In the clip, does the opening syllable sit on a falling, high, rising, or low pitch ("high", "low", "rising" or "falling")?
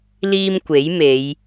high